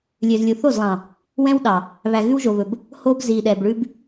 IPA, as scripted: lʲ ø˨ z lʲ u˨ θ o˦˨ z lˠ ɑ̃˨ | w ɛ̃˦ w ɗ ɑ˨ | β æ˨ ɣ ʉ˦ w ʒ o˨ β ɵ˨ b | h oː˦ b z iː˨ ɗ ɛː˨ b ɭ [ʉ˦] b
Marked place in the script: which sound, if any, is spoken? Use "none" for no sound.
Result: ʉ˦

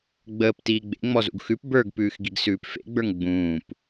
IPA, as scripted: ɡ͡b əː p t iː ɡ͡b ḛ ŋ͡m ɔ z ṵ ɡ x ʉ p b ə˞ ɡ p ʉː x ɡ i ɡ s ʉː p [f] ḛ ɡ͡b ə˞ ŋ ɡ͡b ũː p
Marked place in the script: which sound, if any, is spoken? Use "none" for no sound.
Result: f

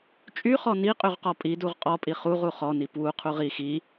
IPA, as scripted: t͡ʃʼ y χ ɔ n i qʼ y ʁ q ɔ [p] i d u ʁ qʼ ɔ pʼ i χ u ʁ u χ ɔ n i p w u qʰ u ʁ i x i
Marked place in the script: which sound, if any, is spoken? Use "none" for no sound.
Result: pʼ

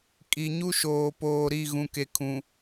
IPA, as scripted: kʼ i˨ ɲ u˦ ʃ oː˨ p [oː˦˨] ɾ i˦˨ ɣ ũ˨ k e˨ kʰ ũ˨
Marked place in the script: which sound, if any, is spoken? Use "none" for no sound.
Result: oː˨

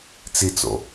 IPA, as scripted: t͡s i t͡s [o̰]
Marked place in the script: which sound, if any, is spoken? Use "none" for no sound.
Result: o̰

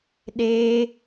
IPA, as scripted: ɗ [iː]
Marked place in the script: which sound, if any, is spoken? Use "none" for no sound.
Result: eː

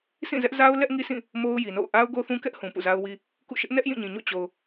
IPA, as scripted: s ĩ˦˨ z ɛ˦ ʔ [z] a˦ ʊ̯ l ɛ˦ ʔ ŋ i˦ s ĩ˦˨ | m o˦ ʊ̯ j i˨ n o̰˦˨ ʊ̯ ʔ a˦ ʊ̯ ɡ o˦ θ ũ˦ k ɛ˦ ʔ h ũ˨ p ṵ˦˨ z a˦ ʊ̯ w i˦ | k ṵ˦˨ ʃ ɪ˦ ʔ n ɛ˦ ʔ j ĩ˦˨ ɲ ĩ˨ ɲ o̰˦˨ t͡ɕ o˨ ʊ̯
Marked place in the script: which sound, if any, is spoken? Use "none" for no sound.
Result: z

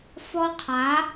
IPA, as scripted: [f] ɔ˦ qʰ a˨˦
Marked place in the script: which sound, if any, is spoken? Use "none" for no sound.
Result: f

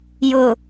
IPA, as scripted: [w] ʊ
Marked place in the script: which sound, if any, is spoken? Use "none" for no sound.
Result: j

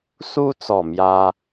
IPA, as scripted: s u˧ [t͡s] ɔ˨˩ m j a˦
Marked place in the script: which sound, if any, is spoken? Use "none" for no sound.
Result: t͡s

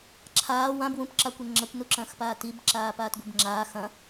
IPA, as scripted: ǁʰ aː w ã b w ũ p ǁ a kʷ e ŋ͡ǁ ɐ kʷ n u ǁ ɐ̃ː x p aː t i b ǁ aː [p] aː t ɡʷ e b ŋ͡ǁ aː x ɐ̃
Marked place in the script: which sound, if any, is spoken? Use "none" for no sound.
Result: p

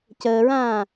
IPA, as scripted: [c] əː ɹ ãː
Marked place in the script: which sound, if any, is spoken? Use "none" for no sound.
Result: c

